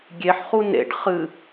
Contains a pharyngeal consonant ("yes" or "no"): yes